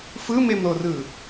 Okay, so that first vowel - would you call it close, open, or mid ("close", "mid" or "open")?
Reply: close